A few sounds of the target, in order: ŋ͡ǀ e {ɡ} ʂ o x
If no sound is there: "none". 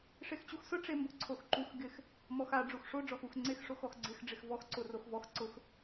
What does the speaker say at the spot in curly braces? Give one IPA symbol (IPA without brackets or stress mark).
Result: x